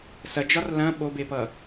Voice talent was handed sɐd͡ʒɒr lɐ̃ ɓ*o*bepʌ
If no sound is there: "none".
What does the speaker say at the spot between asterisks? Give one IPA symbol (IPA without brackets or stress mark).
o